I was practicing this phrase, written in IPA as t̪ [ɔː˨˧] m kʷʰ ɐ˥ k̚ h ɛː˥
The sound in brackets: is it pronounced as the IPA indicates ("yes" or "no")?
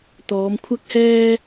yes